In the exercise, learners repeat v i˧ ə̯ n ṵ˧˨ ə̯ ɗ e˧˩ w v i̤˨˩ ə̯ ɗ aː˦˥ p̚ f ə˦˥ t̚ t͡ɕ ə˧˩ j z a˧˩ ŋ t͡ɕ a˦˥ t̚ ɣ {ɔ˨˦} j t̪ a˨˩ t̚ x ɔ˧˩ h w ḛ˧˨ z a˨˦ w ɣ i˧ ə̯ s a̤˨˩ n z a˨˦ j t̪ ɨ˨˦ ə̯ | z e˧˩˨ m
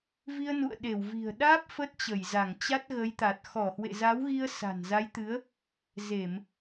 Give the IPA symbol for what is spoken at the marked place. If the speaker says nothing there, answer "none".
ə˨˦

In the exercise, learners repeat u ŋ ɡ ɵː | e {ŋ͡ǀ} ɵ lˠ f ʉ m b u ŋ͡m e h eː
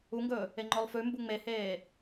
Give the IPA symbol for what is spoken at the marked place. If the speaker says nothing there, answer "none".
ŋ͡ǃ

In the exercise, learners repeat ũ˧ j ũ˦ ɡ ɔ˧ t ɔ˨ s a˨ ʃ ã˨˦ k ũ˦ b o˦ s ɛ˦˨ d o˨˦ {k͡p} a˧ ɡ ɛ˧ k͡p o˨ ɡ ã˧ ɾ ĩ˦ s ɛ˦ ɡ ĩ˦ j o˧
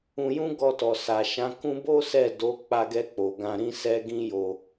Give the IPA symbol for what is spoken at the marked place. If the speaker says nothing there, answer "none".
k͡p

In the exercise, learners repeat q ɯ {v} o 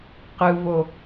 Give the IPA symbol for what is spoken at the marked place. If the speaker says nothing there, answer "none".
v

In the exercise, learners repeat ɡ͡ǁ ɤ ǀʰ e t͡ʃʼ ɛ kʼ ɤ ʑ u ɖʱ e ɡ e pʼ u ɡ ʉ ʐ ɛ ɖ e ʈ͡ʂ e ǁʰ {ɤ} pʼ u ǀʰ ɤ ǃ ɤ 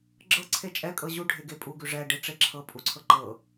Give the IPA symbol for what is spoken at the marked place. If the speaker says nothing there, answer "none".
ɤ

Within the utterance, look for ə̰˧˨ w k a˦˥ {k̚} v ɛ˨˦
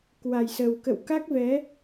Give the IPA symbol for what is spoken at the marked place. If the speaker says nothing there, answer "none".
k̚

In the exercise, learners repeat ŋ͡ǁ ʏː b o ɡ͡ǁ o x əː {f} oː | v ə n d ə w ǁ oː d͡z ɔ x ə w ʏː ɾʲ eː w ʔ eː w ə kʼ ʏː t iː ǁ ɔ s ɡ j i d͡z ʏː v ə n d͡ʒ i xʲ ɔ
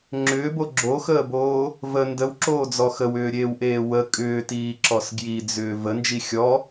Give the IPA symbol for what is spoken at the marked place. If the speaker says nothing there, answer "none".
b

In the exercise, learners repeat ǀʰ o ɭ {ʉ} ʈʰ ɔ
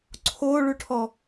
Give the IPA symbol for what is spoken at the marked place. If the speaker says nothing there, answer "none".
ʉ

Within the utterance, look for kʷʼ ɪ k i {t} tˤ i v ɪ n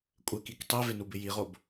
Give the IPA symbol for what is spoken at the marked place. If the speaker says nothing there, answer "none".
k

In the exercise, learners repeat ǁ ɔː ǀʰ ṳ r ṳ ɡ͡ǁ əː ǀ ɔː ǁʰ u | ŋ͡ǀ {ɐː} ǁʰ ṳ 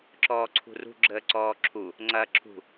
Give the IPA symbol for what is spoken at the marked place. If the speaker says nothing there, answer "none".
ɐː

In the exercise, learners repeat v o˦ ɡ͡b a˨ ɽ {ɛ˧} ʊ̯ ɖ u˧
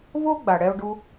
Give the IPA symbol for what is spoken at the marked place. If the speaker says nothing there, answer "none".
ɛ˧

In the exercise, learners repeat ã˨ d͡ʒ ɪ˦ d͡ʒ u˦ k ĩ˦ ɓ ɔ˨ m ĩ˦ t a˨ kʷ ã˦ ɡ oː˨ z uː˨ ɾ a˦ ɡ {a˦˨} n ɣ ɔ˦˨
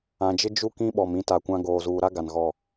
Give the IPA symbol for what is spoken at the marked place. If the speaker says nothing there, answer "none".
a˨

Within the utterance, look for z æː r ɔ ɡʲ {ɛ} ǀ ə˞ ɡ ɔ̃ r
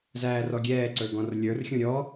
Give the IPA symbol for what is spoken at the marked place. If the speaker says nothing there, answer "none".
ɛː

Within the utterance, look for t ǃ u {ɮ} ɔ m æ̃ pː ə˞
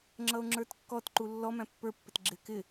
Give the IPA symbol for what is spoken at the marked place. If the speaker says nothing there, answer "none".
lː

